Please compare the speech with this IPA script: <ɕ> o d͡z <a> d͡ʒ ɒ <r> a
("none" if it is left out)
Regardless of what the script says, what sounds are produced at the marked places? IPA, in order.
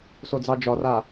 s, ɑ, r

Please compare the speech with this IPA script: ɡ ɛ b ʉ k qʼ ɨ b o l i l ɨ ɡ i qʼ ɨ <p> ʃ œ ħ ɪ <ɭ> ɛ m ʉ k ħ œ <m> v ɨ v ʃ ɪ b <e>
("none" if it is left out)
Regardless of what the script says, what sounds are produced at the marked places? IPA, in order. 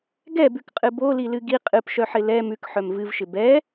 p, l, m, ɛ

